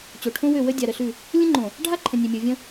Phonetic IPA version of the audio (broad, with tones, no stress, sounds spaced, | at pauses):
t͡ɕ o˨ ʈʰ õ˦ w ø˦˨ w ə˦ dʲ a˨ ɾ ə˨ ɬ ʉ˦˨ | lʲ ə̃˦ ŋ͡ǃ õ˨ | ɖʱ a˦ ǃʰ ə̃˨ nʲ ø˨ mʲ ɤ˨ vʲ ə̃˦